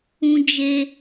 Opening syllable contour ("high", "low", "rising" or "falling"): high